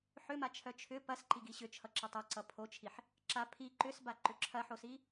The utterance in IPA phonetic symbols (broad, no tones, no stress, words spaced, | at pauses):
ħʏmat͡ʃʰœ t͡ʃʰʏ pɐsǃiɡi ɕʏt͡ʃʰʌǁʌ tˤɛǀʌ pʰot͡ʃʰiħ | ǁa pʰi ǃʏsbaǃʏ ǁʰɐħosi